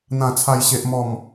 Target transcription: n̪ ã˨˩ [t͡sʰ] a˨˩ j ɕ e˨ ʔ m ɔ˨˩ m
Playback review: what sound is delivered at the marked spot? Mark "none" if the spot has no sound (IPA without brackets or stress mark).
t͡sʰ